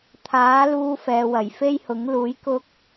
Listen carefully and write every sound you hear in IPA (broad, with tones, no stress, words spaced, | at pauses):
t̪ʰaː˨˥luː˧ fɛː˨wɐ˨˩jfe˥jhʊ˨˥ŋ luː˨˥j kʊ˥k̚